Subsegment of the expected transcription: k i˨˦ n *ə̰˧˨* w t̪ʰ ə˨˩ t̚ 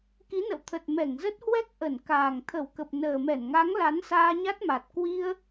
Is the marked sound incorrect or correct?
correct